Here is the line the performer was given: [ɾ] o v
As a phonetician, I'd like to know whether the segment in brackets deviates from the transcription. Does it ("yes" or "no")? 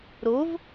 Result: no